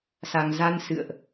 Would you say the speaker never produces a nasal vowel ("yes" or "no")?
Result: yes